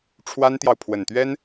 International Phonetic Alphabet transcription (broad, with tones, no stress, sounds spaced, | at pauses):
ʈ͡ʂʰ w a˥ n t̪ j ɑ˨ ʊ̯ pʰ w ə˨˩ n t̪ ɥ ɛ˥ n